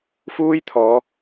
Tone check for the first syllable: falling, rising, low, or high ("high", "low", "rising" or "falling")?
high